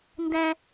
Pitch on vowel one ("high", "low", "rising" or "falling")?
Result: high